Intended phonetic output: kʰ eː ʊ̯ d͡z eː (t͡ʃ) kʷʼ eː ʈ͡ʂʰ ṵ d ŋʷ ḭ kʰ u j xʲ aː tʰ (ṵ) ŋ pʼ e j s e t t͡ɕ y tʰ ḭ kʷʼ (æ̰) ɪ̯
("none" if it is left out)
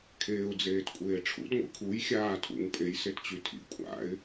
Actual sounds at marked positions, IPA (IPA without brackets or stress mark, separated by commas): t, ṵ, a̰